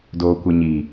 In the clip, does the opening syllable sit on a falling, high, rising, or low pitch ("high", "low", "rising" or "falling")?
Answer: low